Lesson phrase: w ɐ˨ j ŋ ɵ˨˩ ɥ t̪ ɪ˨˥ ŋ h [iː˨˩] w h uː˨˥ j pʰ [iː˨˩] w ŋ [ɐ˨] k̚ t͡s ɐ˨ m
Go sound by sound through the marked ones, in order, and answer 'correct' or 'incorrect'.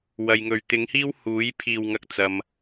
incorrect: iː˥, correct, incorrect: ɐ˨˥

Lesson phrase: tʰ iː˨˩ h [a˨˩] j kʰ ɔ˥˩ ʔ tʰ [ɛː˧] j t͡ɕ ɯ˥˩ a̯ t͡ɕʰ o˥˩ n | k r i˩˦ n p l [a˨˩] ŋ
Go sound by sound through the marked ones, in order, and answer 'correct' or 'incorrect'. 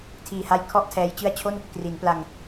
incorrect: a˧, correct, incorrect: a˧

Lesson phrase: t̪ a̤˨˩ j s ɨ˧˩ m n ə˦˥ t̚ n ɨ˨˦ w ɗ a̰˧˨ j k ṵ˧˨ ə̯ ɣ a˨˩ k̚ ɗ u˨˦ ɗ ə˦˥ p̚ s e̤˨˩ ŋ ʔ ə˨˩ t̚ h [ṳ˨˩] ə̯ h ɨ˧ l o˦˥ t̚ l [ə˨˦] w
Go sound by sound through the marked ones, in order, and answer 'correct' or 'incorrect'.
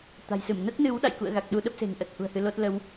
correct, correct

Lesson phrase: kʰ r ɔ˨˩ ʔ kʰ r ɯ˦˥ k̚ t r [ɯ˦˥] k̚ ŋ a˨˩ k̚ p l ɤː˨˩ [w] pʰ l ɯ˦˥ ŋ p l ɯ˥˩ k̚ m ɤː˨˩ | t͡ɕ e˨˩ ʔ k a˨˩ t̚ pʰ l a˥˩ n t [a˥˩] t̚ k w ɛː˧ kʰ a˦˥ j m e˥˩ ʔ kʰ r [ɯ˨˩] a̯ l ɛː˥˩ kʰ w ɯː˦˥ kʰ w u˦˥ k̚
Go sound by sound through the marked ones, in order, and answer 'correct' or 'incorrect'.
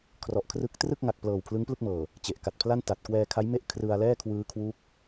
incorrect: ɯ˥˩, correct, incorrect: a˨˩, incorrect: ɯ˧

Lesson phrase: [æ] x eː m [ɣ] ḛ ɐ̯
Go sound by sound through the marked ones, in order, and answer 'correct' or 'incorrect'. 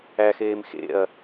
correct, incorrect: x

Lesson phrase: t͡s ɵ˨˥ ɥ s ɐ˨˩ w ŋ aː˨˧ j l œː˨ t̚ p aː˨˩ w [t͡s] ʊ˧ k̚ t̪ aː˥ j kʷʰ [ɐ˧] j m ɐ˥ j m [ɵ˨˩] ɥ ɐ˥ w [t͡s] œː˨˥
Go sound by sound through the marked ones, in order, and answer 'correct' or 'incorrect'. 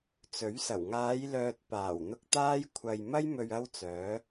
incorrect: n̪, correct, incorrect: ɵ˧, correct

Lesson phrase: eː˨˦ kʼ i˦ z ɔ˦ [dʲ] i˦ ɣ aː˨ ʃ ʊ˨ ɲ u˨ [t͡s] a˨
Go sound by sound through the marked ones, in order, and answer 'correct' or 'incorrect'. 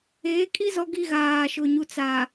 incorrect: ɡ, correct

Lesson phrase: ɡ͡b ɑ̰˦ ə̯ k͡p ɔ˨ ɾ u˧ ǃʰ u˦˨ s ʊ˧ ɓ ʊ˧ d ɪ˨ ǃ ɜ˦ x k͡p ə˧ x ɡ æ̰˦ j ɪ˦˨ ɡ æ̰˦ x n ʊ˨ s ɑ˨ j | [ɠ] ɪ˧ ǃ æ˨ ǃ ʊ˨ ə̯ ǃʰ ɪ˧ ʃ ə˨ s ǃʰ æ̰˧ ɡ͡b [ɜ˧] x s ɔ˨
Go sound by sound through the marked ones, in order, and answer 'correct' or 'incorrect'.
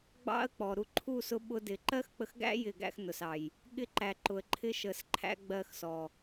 correct, correct

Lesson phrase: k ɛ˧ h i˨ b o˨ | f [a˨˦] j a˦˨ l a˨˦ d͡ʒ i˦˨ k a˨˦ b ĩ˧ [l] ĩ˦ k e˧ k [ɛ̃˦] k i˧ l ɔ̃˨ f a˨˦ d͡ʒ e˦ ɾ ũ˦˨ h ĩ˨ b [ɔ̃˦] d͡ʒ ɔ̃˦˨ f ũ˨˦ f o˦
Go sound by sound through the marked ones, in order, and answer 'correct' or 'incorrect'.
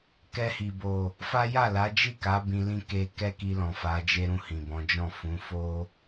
incorrect: a˦, correct, incorrect: ɛ˦, incorrect: ɔ̃˨˦

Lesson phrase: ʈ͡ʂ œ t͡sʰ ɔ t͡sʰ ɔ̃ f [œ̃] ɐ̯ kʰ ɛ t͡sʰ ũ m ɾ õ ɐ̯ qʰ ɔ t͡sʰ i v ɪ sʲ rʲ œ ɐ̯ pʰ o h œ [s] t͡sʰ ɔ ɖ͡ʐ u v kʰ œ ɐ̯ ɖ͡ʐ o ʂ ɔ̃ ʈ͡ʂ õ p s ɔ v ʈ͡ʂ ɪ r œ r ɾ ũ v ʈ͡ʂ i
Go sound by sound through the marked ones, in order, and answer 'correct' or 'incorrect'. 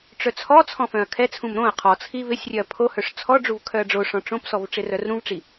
correct, incorrect: ʂ

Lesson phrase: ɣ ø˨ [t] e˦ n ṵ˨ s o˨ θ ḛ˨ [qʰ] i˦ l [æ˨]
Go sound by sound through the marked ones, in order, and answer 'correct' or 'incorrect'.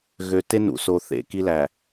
correct, incorrect: k, correct

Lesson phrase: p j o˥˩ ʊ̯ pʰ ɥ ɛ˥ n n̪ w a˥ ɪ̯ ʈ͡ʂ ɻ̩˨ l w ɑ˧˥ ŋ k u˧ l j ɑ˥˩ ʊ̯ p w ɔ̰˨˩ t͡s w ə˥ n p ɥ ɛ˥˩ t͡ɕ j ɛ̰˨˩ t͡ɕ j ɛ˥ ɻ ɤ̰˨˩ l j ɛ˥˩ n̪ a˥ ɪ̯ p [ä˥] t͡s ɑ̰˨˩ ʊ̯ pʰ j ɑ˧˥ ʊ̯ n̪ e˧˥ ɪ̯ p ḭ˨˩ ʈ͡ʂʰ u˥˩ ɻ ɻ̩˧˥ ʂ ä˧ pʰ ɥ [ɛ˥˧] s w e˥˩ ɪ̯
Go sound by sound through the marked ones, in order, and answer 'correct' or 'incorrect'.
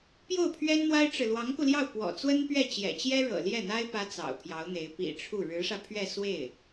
correct, correct

